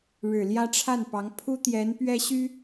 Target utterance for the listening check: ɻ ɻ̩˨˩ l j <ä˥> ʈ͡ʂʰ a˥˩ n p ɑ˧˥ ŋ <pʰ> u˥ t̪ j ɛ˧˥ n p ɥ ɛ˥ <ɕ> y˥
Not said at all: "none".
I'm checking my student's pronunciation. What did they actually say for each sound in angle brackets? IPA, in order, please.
ä˥, pʰ, ɕ

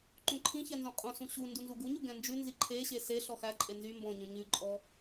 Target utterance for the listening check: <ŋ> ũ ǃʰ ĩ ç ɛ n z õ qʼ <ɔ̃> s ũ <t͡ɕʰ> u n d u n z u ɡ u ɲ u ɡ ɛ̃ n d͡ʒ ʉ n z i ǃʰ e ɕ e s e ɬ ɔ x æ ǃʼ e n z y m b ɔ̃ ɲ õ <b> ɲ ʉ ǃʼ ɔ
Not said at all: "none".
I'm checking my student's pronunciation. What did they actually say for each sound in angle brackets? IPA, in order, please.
ǃ, õ, ɕ, none

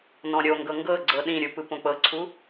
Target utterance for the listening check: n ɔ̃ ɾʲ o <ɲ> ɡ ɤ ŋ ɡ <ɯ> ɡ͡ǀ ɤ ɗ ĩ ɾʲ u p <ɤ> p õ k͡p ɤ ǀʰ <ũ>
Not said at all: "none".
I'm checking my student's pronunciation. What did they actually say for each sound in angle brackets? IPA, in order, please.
ŋ, ɤ, ɯ, u

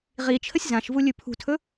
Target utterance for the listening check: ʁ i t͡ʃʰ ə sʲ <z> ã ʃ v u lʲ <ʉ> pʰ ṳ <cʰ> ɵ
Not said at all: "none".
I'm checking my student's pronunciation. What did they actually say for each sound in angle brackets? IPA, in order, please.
z, ʉ, tʰ

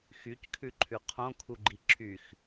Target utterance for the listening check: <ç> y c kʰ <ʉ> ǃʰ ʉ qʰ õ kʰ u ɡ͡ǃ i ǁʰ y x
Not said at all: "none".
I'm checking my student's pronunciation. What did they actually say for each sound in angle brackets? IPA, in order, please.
x, ʉ

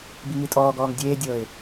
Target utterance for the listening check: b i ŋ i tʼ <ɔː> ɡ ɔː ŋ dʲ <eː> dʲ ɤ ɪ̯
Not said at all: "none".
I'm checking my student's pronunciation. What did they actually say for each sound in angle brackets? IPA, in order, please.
ɔː, eː

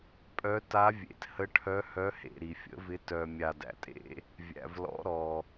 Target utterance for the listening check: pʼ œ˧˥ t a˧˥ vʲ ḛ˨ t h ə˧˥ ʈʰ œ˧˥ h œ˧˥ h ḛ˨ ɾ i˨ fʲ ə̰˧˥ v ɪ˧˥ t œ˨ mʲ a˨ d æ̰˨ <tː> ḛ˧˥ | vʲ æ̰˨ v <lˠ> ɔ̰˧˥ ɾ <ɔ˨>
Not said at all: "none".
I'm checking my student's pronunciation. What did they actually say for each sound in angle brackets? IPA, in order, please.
tʼ, l, ɔ˨

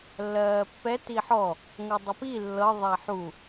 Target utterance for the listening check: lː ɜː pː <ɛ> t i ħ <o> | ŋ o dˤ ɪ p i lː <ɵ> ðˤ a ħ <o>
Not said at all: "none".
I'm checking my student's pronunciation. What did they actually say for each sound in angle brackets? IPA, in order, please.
ɛ, ɔ, ɤ, u

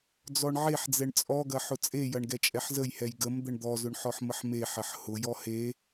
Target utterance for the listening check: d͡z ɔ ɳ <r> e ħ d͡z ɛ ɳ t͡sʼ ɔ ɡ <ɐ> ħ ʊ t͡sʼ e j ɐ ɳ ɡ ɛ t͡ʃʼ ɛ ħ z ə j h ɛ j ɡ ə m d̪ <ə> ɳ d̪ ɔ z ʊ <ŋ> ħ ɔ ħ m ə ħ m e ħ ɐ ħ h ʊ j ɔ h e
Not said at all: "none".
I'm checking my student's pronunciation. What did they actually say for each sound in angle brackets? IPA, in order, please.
ʕ, ɐ, ə, ɳ

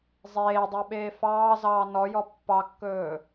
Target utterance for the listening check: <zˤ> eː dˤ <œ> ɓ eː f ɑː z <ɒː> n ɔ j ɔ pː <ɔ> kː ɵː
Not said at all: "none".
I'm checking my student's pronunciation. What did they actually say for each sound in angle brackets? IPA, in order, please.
zˤ, œ, ɑː, ɑ

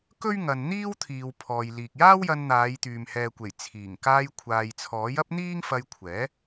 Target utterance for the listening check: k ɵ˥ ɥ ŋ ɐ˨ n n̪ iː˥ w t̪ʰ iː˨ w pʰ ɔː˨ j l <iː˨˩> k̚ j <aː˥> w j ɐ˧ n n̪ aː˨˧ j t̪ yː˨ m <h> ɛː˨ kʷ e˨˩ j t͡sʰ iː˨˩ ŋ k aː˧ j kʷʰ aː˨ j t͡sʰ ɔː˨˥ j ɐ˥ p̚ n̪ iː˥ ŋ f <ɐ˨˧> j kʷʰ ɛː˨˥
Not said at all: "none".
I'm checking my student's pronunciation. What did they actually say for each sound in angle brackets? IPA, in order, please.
iː˨, aː˥, h, ɐ˧

